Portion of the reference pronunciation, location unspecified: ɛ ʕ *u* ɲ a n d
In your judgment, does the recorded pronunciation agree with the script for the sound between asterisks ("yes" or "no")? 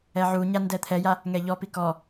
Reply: yes